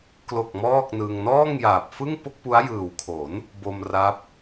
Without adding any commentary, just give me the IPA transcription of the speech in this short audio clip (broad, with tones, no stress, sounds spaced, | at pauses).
k l o˨˩ k̚ m ɔː˥˩ k̚ n ɯ˧ ŋ n ɔː˥˩ ŋ j aː˨˩ p̚ f ɯ˥˩ ŋ p o˥˩ k̚ p u˦˥ a̯ j ɯː˨˩ w kʰ o˩˦ n | b o˧ m r a˦˥ p̚